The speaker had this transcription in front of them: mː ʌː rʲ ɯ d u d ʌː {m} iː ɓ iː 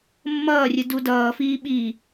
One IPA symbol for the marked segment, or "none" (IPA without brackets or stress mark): f